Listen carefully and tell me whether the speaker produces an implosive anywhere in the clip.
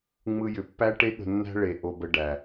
yes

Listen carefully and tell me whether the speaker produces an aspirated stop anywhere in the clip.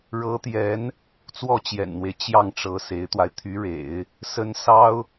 yes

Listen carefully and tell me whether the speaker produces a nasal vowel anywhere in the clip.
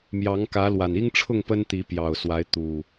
no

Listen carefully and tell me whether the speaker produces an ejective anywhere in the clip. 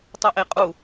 yes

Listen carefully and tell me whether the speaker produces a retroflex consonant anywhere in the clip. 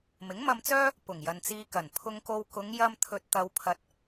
no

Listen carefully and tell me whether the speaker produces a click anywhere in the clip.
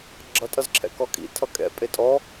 yes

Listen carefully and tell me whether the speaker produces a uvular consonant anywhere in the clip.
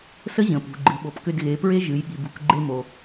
no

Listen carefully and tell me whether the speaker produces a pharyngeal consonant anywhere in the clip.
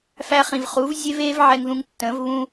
yes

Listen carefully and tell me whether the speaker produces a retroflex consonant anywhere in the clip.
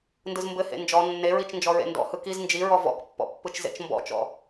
no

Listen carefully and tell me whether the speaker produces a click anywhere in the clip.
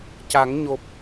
no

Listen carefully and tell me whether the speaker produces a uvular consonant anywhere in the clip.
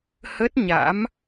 no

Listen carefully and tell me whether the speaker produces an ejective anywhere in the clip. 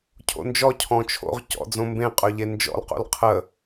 yes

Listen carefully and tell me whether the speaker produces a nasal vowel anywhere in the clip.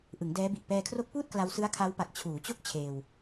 no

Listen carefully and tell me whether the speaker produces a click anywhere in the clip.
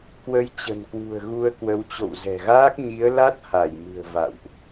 no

